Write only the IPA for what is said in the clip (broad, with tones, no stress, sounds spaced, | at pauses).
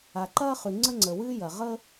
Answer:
a˩ ǃ ɐː˥ χ ʉ˩ ŋ͡ǀ ə˥ ŋ͡ǀ ə˩ w ɨː˥ j ɐ˩ ʁ ə˥